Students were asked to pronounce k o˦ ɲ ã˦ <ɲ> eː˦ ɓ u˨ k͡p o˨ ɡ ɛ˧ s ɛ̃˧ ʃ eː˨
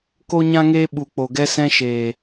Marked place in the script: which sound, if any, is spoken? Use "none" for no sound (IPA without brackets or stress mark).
ŋ